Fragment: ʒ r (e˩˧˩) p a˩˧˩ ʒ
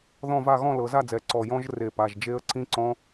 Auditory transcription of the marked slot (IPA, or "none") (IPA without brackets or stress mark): e˧˩